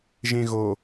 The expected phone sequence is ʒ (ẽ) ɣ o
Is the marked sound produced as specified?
yes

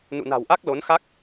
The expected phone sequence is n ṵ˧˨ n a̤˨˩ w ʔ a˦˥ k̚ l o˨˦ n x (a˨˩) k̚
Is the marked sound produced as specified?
no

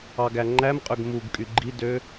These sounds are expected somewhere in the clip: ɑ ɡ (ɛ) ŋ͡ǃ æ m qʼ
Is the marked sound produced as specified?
no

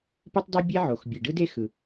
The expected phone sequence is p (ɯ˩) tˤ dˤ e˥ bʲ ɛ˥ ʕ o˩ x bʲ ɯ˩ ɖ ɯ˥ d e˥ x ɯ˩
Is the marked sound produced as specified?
no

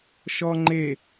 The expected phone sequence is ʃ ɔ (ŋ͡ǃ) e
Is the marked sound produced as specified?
yes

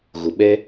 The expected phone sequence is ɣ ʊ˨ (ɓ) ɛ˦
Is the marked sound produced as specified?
yes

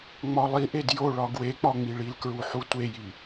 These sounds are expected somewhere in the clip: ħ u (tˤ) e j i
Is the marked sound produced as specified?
no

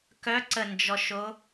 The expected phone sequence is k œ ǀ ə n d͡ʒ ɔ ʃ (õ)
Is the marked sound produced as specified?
no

